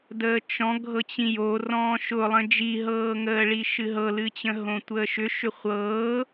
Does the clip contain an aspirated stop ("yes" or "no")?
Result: no